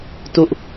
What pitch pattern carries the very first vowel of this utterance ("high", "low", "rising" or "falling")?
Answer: falling